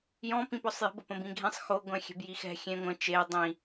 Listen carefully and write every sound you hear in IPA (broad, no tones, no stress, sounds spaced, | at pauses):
j ɔ̃ p ĩ p ɔ sˤ j ə̤ b ə p ə̃ b ĩ ɡʱ ẽ sˤ x o ɡʷ ɛ̃ xʲ ɛ̤ b j i x ɛ̤ xʲ ẽ ŋʷ ə̃ t͡ʃ e dˤ ĩ